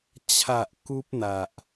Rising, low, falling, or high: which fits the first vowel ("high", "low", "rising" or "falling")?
low